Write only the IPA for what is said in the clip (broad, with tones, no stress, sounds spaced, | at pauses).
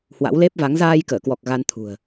h w a̰˧˥ w l e˦˥ p̚ v a˨˦ ŋ z aː˧ j k əː˧˩ k w ɔ˨˩ k̚ ɣ a˧ n t̪ʰ ṳ˨˩ ə̯